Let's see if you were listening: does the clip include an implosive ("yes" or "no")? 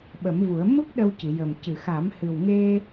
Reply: yes